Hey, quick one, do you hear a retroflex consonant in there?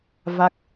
no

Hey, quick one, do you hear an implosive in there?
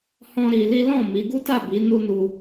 no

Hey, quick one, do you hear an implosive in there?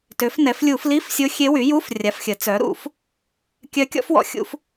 no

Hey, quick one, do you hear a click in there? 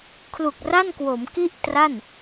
no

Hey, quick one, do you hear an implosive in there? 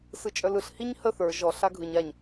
no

